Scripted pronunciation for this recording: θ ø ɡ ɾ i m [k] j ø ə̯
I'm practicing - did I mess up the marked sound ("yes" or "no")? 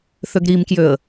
no